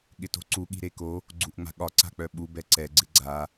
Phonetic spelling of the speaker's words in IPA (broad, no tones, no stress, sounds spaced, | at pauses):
ɠ ɪ t o̤ ǀ u ɠ i̤ ɾ e k o | ɡ͡ǀ u ʔ ŋ͡m a̤ ɠ ɒ ǀ a̤ k͡p œ ɓ u b ɛ ǀ ɛ ɡ͡ǀ ɪ ɡ͡ǀ a